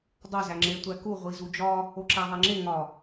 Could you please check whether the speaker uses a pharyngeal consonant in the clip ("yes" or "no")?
no